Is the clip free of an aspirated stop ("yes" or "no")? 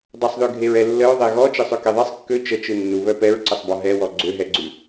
yes